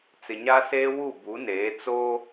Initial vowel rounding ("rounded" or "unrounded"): unrounded